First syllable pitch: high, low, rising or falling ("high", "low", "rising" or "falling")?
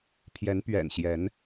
rising